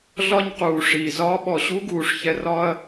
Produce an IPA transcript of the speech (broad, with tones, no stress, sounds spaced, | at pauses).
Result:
ɮ ɒ˦ ɲ q uː˨ ʂ iː˨ z ɒː˦ ɓ ɔ˨ ɕ u˦ ɡ uː˨ ʂ ç ɛ˧ r ɒ˦ ɐ̯